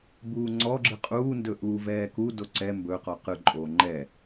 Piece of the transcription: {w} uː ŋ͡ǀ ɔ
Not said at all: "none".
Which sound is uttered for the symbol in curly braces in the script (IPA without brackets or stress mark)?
b